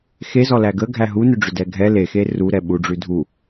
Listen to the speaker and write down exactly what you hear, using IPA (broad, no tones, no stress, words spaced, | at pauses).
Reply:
xezɔ læɡəɡʱæ ɦunʏɖ͡ʐʏ dɛɡʱɛ lexe ru ɾɛɓuɖ͡ʐʉ dʱu